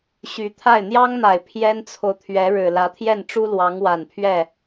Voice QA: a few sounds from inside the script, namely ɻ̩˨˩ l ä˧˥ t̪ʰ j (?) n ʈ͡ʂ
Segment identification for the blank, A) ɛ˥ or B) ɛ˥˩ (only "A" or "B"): B